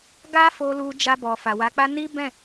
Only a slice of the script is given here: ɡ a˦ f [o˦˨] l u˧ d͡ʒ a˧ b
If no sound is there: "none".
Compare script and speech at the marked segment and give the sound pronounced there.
o˧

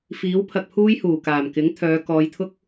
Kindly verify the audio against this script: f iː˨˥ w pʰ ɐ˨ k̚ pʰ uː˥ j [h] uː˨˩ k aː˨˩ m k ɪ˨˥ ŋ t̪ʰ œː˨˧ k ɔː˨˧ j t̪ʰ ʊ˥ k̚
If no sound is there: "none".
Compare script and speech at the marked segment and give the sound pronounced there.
h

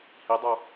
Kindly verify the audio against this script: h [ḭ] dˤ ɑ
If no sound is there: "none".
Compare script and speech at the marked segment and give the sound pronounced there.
i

